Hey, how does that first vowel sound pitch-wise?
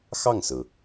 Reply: falling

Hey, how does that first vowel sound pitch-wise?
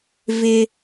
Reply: high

